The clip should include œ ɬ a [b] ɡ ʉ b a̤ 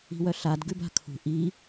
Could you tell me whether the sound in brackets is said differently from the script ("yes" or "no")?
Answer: yes